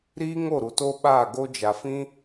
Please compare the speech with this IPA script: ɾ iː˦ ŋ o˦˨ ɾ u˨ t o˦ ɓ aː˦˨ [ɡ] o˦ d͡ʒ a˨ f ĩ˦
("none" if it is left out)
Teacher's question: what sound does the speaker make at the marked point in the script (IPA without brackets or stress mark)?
ɡ